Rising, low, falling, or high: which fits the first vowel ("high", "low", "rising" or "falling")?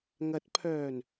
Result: rising